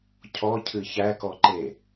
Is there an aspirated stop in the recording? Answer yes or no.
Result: yes